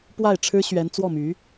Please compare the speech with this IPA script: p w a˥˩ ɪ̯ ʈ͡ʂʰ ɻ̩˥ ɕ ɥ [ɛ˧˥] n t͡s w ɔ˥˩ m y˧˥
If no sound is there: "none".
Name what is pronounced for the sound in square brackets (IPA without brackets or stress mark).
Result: ɛ˧˥